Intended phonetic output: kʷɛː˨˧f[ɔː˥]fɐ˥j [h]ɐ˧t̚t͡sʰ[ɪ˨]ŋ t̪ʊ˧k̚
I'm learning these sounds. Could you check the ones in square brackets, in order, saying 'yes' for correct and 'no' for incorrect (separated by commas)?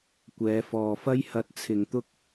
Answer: no, yes, yes